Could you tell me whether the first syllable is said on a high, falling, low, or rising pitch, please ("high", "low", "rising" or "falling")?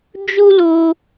high